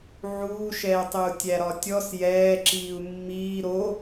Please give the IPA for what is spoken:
ʕuːʃɛːtˤeu̯ tʲæɾɒtʲɔs jɛː ǁiːu̯mːiː ɾo

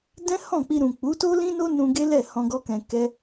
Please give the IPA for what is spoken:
dɛ̃˦hɔ̃˦˨k͡pi˧ ɾũ˨k͡pu˨˦to˦lĩ˦ no˦nũ˧ ɡe˦lɛ˦˨ hɔ̃˧ ɡɔ˦kɛ̃˧ kɛ˦

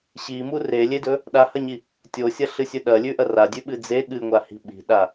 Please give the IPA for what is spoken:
ɕimu relʲedɵ | ɗahɐɲi | tʲosʲɐɬɨsʲɵ ɗɐlʲʉʔɐ radʲʉɓɨ d͡ze ɠɨŋʷahi̤ ɓi̤ɗa

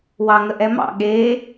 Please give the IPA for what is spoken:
wɑŋəʔɛmɑ̰ ɠe

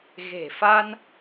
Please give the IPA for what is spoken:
ɣe̤˨˩fa˧n

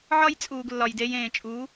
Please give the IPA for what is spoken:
ʕɒ˦jt͡sʼuː˨ɡ lːɒ˨jde˧jẽː˨t͡ʃʼuː˨˦

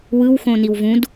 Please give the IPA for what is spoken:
wɯwxõ niwvũd

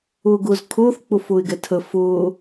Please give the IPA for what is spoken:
ʊːɡʊːzkʰʊːθ k͡pʊfʊːɪ̯ɡɛtʰə fʊː

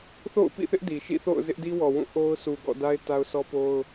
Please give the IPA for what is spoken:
θo̰˦˨ʊ̯pḭ˦˨θɪ˦ʔ di˨ ʃḭ˦˨θo̰˦˨ʊ̯ zɪ˦ʔdi˦wɔ˨wũ˦˨ ʔo˦ʊ̯ su˨ɡɔ̰˦˨da˦ɪ̯ ta˦ʊ̯sɔ˦po˦ʊ̯

